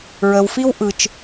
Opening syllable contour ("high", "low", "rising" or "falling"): low